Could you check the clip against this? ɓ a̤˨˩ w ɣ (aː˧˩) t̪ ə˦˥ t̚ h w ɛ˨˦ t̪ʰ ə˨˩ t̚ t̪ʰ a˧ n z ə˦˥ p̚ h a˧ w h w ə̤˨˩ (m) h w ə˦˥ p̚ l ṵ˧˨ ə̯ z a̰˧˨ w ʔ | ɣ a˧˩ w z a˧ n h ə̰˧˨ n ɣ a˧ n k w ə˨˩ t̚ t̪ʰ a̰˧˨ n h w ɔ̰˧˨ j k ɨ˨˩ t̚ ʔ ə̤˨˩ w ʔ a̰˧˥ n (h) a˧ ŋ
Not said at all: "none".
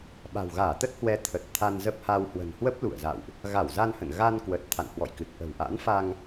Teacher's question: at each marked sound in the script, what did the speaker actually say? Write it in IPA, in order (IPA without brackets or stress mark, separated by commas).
aː˧˩, n, f